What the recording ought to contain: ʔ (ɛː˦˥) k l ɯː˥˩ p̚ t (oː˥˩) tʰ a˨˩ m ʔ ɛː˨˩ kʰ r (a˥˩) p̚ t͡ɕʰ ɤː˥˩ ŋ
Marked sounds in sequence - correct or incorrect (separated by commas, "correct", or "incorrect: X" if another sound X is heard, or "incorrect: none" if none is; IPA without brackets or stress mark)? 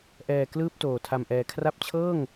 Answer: incorrect: ɛː˨˩, incorrect: oː˨˩, incorrect: a˦˥